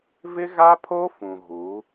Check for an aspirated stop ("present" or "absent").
present